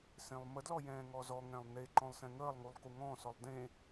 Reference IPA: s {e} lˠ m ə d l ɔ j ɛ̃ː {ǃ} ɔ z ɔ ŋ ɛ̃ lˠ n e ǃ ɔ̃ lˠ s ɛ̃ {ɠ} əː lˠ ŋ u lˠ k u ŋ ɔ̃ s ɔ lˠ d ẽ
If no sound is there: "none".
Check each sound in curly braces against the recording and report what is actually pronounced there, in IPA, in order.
ẽ, ŋ, ŋ

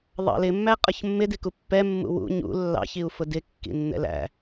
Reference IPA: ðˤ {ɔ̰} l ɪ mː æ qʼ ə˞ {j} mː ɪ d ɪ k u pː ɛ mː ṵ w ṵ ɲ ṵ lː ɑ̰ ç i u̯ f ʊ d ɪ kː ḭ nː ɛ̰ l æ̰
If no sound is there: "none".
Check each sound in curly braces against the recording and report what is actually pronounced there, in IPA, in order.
ɑ̰, ç

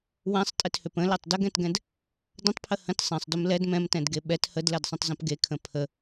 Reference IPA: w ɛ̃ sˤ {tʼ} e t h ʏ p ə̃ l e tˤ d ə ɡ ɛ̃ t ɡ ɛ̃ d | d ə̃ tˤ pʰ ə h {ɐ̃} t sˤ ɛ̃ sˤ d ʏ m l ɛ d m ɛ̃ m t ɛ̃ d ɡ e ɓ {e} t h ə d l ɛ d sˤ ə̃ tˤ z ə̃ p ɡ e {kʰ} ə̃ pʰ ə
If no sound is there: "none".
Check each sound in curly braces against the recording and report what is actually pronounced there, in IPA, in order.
tʼ, ə̃, ɛ, kʰ

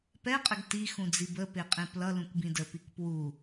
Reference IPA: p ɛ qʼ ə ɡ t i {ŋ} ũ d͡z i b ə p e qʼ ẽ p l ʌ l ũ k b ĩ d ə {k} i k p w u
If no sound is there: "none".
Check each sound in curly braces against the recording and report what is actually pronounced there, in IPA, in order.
x, p

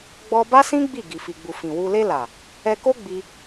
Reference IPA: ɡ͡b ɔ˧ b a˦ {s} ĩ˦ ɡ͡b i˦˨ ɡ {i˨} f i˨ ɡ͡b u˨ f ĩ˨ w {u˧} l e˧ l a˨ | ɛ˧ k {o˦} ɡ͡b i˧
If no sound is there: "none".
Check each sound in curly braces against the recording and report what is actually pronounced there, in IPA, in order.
s, i˨, u˧, o˦

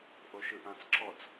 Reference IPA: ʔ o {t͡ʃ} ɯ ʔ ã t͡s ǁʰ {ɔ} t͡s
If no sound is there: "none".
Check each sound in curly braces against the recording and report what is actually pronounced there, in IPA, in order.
ʃ, ɔ

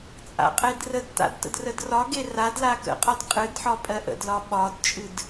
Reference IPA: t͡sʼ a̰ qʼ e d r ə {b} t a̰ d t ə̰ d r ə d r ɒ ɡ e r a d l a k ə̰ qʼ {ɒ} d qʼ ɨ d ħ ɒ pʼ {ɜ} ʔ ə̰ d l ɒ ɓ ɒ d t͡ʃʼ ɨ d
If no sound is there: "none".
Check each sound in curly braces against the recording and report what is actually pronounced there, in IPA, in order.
d, ɒ, ɜ

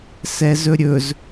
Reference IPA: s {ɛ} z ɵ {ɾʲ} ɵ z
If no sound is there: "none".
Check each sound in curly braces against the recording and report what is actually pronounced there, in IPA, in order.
ɛ, ɾʲ

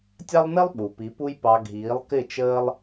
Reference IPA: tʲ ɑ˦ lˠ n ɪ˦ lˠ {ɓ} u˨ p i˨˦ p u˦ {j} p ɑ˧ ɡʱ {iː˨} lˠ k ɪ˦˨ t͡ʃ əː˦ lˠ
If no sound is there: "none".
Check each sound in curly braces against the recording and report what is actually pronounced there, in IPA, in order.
ɓ, j, iː˨˦

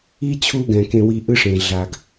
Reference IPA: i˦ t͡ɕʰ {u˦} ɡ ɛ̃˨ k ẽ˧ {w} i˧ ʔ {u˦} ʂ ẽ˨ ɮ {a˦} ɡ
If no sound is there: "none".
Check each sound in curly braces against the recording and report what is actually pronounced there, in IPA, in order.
u˦, w, ɯ˦, a˨

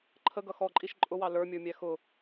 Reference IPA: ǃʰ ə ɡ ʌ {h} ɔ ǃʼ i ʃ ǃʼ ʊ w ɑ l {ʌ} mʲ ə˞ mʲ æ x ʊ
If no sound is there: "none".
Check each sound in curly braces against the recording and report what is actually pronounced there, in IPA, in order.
x, ə˞

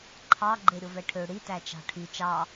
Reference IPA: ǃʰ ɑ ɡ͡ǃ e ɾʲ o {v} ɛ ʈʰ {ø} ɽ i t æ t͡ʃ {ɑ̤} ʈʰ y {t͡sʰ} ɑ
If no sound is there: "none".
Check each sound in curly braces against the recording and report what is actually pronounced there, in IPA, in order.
v, ø, ɑ̤, t͡ʃ

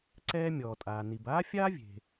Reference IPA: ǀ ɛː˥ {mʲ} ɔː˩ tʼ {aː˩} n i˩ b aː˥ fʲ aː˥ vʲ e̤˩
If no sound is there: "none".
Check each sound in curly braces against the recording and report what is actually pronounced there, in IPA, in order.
mʲ, aː˩

